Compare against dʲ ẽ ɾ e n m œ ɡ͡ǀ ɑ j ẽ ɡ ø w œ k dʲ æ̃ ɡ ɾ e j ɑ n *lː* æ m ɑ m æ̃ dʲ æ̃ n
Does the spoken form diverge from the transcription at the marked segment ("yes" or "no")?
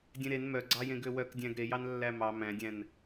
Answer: no